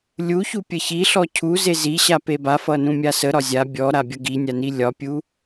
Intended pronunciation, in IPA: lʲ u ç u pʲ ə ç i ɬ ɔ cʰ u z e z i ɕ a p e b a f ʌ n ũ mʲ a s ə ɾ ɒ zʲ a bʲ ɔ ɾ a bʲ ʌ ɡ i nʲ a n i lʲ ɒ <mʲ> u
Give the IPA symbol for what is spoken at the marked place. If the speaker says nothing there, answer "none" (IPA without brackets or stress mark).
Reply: pʲ